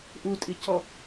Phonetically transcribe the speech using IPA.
ʔ u tʼ i c ɔ

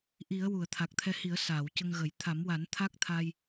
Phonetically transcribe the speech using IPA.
ʔ i˨˩˦ ə̯ w u˨˩˨ ə̯ t̪ʰ a˨˩ k̚ t̪ʰ ɛ˧ h i˨˩˦ ə̯ s aː˨˩˨ w c ə˧ ŋ ɣ ə˨˩˦ j t̪ʰ a˨˩˦ m w a˨˩˦ n t̪ʰ a˦˥ k̚ t̪ʰ a˧ j

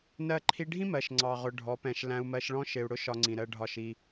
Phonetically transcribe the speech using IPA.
n ɜ˧ ǃʰ i˧ ɖʱ ĩ˦ m ɜ˨ ʃ ŋ͡ǀ ɑ˨ ʁ ʊ˨ ɖʱ ɔ˨˦ p ɛ̃˧ ʃ l æ̃˧ u̯ m ɜ˧ ʃ ɭ ɔ̃˦ ʃ ɪ˨ u̯ ɽ ʊ˦ ʃ ɒ˧ ŋ͡ǀ ĩ˨ ɾ ɜ˧ ɖʱ ɒ˦˨ ʃ i˦

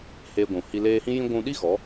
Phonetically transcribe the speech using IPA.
h eː˧ ɡʷ ũ˨ h i˧ l eː˧ h ĩ˦ j ĩ˦ ɡʷ ũ˧ ɗ i˦ ɣ ɔ˨˦

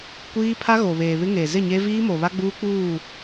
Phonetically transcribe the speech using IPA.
kʷ iː˦ pʰ a˦ ɣ o˨ β eː˨ β ɪ˦ ŋ e˨ z ɪ˦˨ ɲ e˦ v iː˦ m o˨ β a˦ ɡ͡b uː˦ k͡p uː˦˨

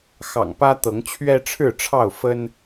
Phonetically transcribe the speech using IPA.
x ɑ̰˨˩ ŋ p ä˦ t̪ ɤ˨˦ ŋ t͡ɕʰ ɥ ɛ˦ ʈ͡ʂʰ ɻ̩˥˨ ʈ͡ʂʰ ɑ˥˨ ʊ̯ f ə˦ n

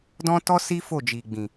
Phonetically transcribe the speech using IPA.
d ɔ̃˦ t ɔ˦ s i˦ f o˦˨ d͡ʒ i˨ ɡ͡b ĩ˨

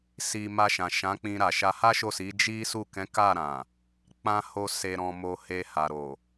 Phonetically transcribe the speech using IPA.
s i˨ m a˧ ʃ ã˨ ʃ ã˨˦ k͡p ĩ˧ ɾ a˨ ʃ a˧ h a˦ ʃ o˦˨ s i˨˦ d͡ʒ i˦ s u˦˨ k ɛ̃˨˦ k a˦˨ ɾ ã˨ | k͡p ã˨ h o˨ s e˨ ɾ ɔ̃˨ m o˨ h e˧ h a˨ ɾ o˨

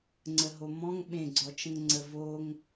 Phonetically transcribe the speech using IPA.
ŋ͡ǀ ə ɦ o m ɔ̃ ŋ ɓ ẽ ɡ͡ǀ ɔ t͡ʃ ə̃ ŋ ŋ͡ǀ ə v o ŋ

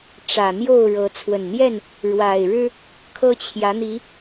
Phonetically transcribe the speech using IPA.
ʈ͡ʂ ä˨˩ n̪ j o˥˨ ʊ̯ ɻ ɤ˨˦ t͡sʰ w ə˨˩ n n̪ j ɛ˥˨ n | ɻ w a˨˩ ɪ̯ ɻ ɻ̩˦ | kʰ ɤ˦ t͡ɕʰ j ä˨˦ n̪ i˨˦

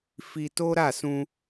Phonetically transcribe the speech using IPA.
f i˧ t o˦ ɾ a˦˨ s ũ˧

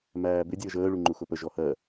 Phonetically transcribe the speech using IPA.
m æː b ɪ dʲ əː ʒ əː ɭ u ŋ͡ǃ u x ʊ p ə ʒ ɔ h ɜ

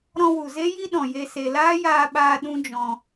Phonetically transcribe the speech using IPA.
ɾ ɔ̃˧ w u˨ z e˦ j i˦ ɗ ɔ̃˨ j e˧ s e˨ l aː˦ j aː˧ ɓ aː˧ ɗ ũ˦ d͡ʒ ɔ̃˧

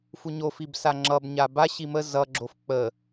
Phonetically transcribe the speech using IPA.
f u ɲ o f i b s a ŋ͡ǁ ʌ b ɲ a b a ɕ i m ə z ʌ ɡ͡ǁ o f k͡p ə

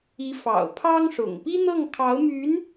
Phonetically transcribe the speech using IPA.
i˧˥ f ɑ̰˨˩ ʊ̯ pʰ ɑ˥ ŋ ʂ ʊ̰˨˩ ŋ p i˥ n̪ ɤ˥˩ ŋ kʰ ɑ˧˥ ʊ̯ m y˧˥ n

